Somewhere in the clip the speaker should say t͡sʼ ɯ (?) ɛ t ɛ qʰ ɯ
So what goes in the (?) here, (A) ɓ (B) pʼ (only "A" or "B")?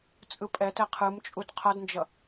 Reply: B